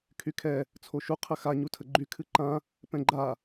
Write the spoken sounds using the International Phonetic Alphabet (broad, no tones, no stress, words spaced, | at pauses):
kʰykʰɛ | t͡sʰoʃu qʰəxa ɲutʰəɡ͡ǃy kʰɨǃã | pɛ̃ɡ͡ǃa